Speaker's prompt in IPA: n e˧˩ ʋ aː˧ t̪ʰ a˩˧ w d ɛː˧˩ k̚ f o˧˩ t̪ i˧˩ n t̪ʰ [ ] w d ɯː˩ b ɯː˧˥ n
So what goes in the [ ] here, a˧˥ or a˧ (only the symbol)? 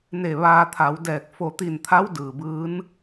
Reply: a˧˥